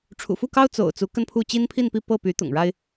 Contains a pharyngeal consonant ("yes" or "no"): no